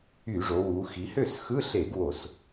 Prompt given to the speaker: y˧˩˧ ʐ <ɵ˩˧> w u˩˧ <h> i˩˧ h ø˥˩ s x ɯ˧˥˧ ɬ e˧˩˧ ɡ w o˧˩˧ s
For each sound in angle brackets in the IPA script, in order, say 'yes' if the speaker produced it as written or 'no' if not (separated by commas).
no, no